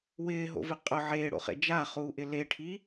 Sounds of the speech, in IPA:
wɪːɦo̰vɪ qʼʊ ʕeːɽo̰χḛ d͡ʒaχuːʔɪ leʈʰi

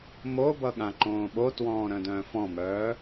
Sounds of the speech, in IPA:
mobʌɠã ǃõːɓotwɔ̃ː ɾœ̃dœ̃ːfɔ̃mœː

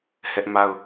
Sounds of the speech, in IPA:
hɛ˦ʔma˦˨ʊ̯

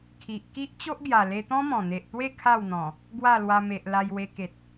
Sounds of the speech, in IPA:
kʰi˨ʔ ki˦ʔ t͡ɕo˦ʔɡja˨˩ le˧t̪ɔ̃˦mɔ̃˨˩n̪e˨ʔ t̪we˥˧ kʰa˥˧wn̪ɔ̃˨˩ | ɡwa˥˧lwa˧me˨ʔ la˧jwe˧ke˨t̚

